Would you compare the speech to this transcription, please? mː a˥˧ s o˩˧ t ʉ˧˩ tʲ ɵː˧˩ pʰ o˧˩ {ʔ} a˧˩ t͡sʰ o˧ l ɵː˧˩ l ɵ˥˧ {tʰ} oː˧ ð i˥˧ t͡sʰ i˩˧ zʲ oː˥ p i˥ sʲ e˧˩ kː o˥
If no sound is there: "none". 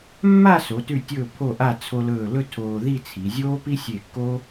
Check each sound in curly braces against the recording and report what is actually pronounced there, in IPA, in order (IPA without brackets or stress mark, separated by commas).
ʔ, tʰ